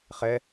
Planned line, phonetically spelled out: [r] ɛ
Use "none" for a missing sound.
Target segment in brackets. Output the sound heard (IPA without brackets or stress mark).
χ